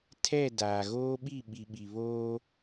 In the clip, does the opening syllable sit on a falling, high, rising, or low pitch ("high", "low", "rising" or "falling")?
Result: falling